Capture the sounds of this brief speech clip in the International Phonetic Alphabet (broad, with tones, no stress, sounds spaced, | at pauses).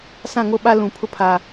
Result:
s ã˦˨ ŋ o˦ ɓ a˦ l ũ˨ pʰ ʊ˦ pʰ a˨